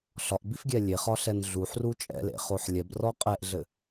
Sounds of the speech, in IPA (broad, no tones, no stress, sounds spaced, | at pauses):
ɬ ɒ ʔ b i f ɡʲ ɛ lʲ e χ ɒ ɬ ɛ n ɮ u ħ r u t͡ʃʼ ɛ̰ l ḛ χ o ħ lʲ ɛ b r ɔ qʼ ɛ ʔ ɮ ɘ